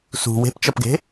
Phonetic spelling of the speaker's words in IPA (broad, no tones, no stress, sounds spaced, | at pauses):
s ṳ w e̤ p t͡ʃ ʌ p ɡ e̤